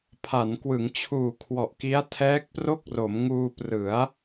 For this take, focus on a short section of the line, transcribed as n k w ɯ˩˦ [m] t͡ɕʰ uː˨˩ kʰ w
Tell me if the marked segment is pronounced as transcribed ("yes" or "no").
no